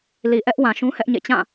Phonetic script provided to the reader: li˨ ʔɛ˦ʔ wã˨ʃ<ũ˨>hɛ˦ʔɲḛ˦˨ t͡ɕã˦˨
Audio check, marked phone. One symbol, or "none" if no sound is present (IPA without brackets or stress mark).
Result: ũ˦